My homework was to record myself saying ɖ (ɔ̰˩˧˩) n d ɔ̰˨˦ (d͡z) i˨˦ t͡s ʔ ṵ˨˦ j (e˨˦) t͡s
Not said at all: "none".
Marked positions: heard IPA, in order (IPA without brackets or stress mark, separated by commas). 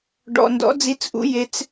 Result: ɔ̰˩˧˩, d͡z, e˨˦